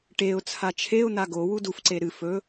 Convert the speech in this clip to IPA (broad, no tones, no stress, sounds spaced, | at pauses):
ʈ e ʊ̯ t͡sʰ a t͡ʃʰ e ʊ̯ n̪ a ɡ o w u d u f ǀ e ɾ ɨ f ɵ